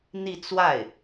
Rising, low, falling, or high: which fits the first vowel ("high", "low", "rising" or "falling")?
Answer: falling